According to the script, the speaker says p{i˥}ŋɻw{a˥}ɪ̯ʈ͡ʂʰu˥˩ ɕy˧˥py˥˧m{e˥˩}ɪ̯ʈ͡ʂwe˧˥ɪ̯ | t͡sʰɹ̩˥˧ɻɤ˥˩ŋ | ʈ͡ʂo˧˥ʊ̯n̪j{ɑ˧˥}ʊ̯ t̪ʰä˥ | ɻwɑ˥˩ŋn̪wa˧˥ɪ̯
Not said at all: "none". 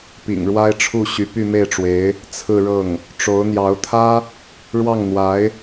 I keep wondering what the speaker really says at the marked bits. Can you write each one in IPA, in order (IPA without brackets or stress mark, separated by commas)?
ḭ˨˩, a˥, e˥˩, ɑ˧˥